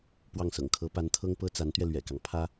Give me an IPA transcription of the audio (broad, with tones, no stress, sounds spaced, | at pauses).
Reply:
p w ɑ˥˩ ŋ s ɤ̰˨˩ ŋ kʰ ɤ˧˥ p a˧˥ n t̪ʰ ɤ˥ ŋ p ɤ˥ t͡s a˧˥ n t̪ ɥ ɛ˧ l ɥ ɛ̰˨˩ k ɑ˦ ŋ pʰ ä˥